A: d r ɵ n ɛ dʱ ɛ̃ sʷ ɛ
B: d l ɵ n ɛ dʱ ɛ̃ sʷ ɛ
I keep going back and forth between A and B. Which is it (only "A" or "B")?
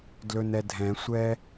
B